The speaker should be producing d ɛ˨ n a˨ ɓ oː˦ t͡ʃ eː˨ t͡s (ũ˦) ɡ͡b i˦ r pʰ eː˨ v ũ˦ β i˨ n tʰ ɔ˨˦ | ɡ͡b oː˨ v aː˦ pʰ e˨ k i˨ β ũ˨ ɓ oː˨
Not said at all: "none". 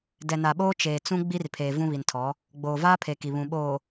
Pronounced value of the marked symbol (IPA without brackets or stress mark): ũ˦